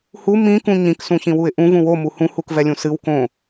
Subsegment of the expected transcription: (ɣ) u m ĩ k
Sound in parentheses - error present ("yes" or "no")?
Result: yes